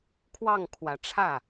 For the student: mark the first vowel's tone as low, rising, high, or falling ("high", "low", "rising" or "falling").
falling